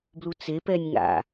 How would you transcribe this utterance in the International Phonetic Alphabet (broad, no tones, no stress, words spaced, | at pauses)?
blut͡sepɛnʲ ŋa̰